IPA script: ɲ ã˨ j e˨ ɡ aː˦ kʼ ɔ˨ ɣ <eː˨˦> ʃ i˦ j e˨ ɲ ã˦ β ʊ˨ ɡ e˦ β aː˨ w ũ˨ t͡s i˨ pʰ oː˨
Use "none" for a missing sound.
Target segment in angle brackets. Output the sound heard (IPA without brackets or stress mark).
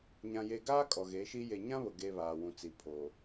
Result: eː˨˦